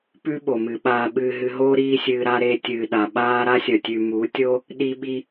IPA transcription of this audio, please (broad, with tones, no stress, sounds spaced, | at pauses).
p ʉ˦ ɓ o˨ m ɨ˨ ɓ aː˨ ɓ ɨː˨ ɦ ɨ˨ ɦ oː˧ ɾ iː˦ sʲ ɨː˧ ɾ a˦ ɾ e˧ tʲ ɨː˨ ɗ a˨ ɓ aː˦ ɾ a˦ sʲ ɐ˨ tʲ ʉ˨ m u˨˦ tʲ o˦ | ɗ i˧ ɓ i˧